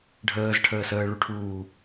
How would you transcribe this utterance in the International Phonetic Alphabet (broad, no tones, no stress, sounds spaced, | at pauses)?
ɖʱ əː z ʈʰ əː s əː ɭ u ʈʰ uː